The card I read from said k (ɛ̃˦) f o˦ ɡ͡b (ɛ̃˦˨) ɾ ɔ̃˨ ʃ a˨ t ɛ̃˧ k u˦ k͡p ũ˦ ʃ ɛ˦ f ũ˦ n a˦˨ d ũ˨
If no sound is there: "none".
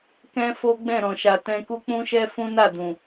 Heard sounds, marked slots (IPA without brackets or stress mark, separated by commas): ɛ̃˦, ɛ̃˦˨